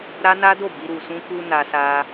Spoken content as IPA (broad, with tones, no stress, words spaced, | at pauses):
ɾa˦na˦do˦˨bi˧ ɾu˨sũ˧ku˧ na˧sa˧